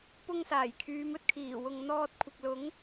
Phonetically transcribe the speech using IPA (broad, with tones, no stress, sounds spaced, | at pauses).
p ʊ˥ ŋ s aː˨˩ j kʰ yː˨˧ m ɵ˨ t̚ kʰ iː˨˩ w ʊ˨ ŋ n̪ ɔː˧ t̚ kʷʰ ɪ˨ k̚ l ʊ˨˥ ŋ